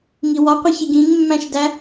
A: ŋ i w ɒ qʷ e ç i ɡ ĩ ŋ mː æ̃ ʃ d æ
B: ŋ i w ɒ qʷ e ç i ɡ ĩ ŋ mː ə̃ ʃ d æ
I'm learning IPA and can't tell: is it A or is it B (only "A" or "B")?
A